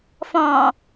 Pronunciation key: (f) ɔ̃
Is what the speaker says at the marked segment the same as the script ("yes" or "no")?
yes